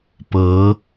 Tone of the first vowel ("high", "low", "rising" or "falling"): rising